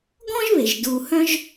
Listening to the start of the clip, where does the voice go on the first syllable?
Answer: high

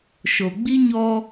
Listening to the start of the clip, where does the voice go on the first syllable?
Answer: low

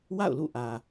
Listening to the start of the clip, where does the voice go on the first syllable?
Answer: falling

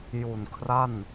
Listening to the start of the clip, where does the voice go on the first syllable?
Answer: low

